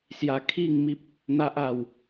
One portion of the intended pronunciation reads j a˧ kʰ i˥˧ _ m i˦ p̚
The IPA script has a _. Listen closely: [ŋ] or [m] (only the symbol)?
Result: ŋ